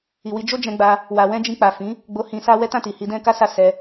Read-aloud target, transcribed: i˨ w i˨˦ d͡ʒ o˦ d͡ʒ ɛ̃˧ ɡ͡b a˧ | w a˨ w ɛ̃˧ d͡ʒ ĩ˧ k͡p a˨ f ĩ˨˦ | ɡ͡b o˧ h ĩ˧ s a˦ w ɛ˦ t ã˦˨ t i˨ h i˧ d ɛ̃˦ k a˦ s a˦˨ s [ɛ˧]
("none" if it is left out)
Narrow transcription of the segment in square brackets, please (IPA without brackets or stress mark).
ɛ˧